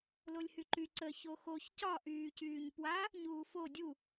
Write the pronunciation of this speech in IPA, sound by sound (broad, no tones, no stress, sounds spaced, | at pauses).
l o lʲ h y ǃ y ǀ ə ç o x o ç c ɒ ʔ yː c yː ɲ p w a | ɲ uː f o dʲ u